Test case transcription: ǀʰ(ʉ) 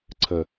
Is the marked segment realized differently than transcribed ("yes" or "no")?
yes